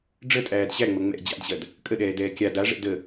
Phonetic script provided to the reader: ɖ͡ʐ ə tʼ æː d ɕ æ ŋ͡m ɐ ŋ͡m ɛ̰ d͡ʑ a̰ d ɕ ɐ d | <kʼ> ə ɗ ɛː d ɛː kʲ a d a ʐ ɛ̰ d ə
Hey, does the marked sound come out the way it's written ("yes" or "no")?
yes